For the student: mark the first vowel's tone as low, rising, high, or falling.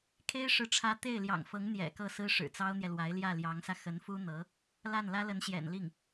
high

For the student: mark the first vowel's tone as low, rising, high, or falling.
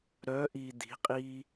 rising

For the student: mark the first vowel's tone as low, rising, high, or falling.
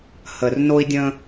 low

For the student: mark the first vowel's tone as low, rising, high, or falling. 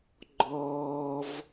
high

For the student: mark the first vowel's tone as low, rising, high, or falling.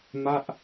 falling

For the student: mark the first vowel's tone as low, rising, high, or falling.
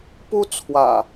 high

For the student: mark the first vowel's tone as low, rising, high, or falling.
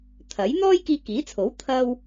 rising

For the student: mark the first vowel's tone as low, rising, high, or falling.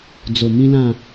low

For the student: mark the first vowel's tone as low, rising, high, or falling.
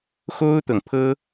high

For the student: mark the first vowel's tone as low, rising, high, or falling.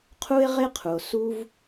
high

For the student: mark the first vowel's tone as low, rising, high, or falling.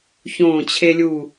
falling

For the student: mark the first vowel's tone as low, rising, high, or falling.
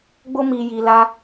high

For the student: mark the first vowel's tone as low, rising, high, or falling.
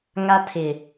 high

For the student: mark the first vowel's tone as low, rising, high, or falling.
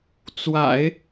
low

